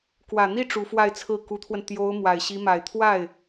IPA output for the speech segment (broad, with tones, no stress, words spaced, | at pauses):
kwä˨˩n̪i˥˩ ʈ͡ʂu˧˥fwa˥˧ɪ̯t͡sʰɹ̩˥˩ ku˧˥t̪ʰwə˧n t̪jo˧˥ʊ̯ mwa˨˩ɪ̯ɕi˧˥ma˨˩ɪ̯ t̪ʰwa˥˩ɪ̯